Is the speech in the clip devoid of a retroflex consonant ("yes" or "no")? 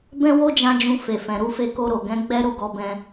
yes